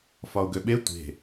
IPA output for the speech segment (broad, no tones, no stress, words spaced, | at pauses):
fɒʊ̯ɡøɓe tʷe̤